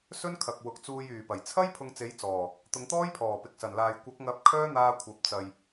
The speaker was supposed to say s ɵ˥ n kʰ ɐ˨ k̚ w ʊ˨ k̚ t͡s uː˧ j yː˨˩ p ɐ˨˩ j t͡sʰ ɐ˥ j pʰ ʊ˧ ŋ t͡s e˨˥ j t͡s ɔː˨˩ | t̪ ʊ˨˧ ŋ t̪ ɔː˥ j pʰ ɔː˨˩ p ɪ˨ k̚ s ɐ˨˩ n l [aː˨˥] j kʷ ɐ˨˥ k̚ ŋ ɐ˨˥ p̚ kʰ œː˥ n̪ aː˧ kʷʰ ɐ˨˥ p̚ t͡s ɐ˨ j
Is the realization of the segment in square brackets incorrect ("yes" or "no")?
yes